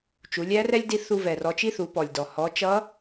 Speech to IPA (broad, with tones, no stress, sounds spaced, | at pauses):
t͡ʃ u˩˧ lʲ æ˧˥ r ɛ˥ lʲ d i˧˥ θ u˧ v ɛ˩ r ɔ˩˧ t͡ʃ i˥ θ u˩˧ p ɔ˩ lʲ d ɔ˩ h ɔ˩˧ t͡ʃ ʌ˧˥